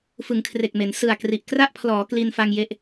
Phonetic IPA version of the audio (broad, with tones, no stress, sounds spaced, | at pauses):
f ɯ˩˦ ŋ kʰ r e˨˩ k̚ m e˩˦ n s ɯ˨˩ a̯ k r i˨˩ ʔ k r a˥˩ ʔ pʰ l ɔː˩˦ k l i˧ n f a˧ ŋ j e˦˥ ʔ